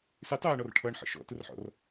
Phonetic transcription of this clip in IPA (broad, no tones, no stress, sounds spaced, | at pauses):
s ɪ tˤ æː ɳ ɔ r ʈʰ ʌ ɳ ħ ə̰ ʃ ɔ̰ t ʊ r ħ ɔ̰ r